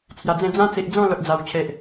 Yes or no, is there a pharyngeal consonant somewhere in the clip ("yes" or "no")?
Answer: no